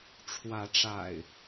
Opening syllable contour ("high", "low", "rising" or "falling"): rising